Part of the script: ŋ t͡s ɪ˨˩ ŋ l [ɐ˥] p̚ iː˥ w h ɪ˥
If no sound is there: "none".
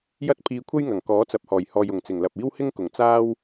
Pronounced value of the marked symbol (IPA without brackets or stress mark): ɐ˨